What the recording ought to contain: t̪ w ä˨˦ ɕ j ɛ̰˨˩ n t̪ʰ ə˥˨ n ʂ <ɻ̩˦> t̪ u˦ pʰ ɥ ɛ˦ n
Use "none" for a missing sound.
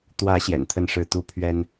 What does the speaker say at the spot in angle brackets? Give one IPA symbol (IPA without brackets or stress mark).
ɻ̩˥˨